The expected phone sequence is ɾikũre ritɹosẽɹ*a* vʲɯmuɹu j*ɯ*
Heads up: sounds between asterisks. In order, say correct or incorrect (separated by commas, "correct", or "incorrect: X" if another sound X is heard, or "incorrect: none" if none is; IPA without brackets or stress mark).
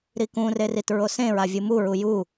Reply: correct, incorrect: u